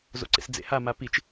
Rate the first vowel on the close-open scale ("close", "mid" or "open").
mid